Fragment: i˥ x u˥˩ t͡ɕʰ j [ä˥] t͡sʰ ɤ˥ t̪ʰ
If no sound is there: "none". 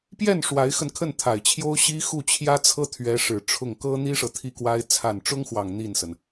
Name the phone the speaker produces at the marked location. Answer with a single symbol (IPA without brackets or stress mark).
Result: ä˥